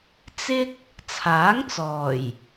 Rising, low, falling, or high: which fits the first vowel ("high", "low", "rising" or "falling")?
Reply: high